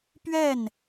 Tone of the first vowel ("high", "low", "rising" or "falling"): falling